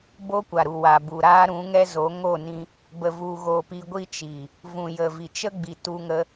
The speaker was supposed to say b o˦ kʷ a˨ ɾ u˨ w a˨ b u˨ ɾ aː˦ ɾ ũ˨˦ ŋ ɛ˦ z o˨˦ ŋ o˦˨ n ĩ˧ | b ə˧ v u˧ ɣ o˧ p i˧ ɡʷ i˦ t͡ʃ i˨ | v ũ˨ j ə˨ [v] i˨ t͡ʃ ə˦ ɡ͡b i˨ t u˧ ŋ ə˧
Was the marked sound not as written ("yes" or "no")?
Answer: no